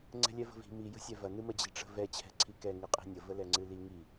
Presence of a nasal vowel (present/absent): absent